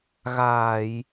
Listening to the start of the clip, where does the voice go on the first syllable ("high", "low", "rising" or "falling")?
low